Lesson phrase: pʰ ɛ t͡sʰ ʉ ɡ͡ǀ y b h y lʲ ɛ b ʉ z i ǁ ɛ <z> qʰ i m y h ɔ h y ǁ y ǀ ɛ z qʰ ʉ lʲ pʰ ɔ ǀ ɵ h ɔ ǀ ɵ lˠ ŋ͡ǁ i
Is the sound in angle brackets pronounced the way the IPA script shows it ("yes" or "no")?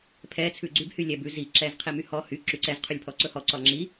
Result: yes